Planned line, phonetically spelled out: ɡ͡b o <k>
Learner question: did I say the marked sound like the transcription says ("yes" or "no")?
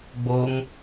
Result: no